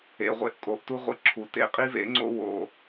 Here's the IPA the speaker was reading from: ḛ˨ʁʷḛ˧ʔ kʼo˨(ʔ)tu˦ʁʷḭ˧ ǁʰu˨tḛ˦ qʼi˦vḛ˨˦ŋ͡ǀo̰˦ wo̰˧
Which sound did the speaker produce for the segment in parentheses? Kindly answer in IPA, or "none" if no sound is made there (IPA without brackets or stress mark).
ʔ